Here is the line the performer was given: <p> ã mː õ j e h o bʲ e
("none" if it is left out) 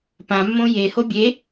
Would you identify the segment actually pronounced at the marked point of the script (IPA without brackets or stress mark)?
p